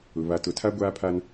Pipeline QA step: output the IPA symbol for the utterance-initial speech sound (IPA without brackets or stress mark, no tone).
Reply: ʊ